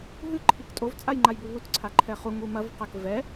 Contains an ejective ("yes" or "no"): yes